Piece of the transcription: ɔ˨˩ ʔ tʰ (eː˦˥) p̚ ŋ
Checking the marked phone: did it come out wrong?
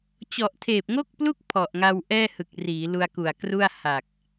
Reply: yes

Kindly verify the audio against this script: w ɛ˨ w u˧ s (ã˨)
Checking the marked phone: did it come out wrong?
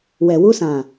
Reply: no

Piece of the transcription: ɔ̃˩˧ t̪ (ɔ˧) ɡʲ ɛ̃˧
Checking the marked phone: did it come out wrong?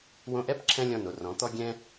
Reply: no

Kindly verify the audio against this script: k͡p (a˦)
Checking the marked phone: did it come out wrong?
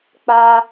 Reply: no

